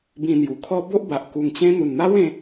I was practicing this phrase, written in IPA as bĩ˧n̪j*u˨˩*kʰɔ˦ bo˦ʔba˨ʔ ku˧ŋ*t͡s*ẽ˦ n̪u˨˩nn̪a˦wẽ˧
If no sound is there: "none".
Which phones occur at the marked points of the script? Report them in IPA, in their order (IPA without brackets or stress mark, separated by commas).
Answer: u˨˩, t͡ɕ